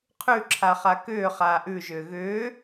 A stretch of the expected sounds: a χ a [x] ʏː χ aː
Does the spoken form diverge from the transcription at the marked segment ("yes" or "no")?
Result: yes